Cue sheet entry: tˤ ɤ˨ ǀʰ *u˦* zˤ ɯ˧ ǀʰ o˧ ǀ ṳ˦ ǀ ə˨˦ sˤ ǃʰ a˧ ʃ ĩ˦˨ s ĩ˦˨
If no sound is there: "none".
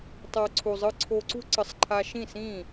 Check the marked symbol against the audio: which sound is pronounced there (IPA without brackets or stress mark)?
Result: u˨